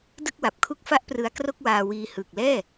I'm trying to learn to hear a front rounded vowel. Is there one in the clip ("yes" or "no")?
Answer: no